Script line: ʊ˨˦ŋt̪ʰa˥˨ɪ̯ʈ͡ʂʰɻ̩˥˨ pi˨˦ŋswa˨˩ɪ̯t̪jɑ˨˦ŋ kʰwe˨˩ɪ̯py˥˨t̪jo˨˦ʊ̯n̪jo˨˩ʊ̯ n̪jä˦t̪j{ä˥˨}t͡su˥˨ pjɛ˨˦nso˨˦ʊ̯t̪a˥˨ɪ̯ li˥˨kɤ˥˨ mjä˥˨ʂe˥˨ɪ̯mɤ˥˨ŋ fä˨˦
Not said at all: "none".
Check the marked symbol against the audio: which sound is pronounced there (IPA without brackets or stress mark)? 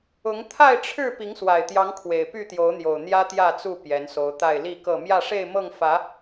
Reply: ä˥˨